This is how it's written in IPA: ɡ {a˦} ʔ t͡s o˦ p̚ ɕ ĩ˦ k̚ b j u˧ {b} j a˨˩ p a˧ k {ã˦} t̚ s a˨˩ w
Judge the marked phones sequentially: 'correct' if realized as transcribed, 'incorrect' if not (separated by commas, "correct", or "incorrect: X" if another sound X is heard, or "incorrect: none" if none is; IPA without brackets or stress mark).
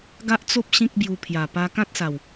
correct, incorrect: pʰ, correct